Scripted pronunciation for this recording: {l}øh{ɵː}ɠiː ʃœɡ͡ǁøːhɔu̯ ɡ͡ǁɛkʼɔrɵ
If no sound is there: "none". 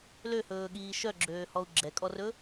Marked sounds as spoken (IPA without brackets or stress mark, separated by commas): l, ɵː